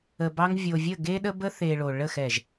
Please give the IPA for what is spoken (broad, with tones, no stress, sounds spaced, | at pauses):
ə˨ b ɑ˧ ŋ vʲ o˨ vʲ ə˦˨ ɡ e˦ ɗ ə˦ b ə˦ θ e˨ ɭ o˨ ɭ ə˦˨ x ɛ˨ ʒ